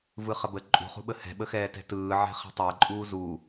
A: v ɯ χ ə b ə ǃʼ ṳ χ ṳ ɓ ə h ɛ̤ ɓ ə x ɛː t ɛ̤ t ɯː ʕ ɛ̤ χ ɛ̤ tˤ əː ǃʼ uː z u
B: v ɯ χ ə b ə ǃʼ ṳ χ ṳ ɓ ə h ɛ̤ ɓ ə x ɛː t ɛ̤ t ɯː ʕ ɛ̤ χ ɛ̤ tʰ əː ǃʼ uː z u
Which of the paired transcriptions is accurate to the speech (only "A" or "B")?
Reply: A